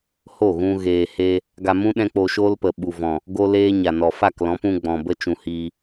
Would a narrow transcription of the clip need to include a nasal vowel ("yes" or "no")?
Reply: yes